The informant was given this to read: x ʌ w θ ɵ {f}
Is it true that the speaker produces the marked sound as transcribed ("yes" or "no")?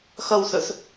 no